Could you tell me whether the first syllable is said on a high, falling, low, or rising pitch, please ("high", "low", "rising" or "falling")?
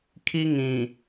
high